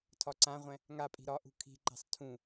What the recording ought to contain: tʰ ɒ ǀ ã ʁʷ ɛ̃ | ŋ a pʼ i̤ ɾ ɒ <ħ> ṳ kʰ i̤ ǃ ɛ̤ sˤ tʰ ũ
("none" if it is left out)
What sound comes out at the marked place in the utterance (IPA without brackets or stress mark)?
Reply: ʔ